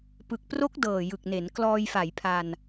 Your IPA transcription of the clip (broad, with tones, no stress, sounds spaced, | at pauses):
p ɯ˨˩ k̚ p r o˦˥ k̚ d ɤː˨˩ j ɯ˨˩ k̚ n e˩˦ n k l ɔː˧ j f a˩˦ j pʰ a˧ n